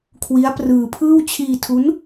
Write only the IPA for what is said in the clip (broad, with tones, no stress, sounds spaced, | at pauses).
kʰ w i˦˥ a̯ p r ɯː˧ pʰ ɯː˥˩ w t͡ɕʰ iː˧ tʰ u˦˥ n